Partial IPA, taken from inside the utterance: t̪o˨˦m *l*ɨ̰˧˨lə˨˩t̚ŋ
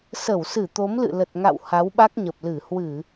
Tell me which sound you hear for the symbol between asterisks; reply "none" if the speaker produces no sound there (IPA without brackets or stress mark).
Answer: l